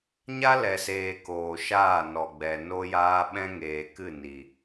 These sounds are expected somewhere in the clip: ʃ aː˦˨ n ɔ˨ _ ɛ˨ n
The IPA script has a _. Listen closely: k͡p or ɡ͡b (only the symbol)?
ɡ͡b